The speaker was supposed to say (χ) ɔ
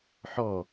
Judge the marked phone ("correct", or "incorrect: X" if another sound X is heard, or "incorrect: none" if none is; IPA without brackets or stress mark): incorrect: ħ